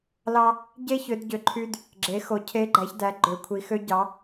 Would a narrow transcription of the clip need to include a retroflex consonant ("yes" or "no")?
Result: no